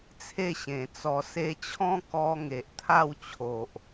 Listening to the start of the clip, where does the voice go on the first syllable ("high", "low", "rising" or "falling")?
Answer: falling